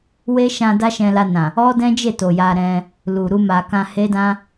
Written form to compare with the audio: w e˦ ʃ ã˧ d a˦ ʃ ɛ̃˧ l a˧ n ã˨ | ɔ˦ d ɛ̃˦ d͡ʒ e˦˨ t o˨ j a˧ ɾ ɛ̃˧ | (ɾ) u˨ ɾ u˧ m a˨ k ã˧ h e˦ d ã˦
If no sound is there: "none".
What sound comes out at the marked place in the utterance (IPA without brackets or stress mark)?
l